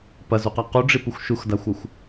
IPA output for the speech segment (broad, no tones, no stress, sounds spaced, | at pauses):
p ɐ z u q a q u ɖ͡ʐ i p u xʷ ʃ u x d a xʷ ɐ xʷ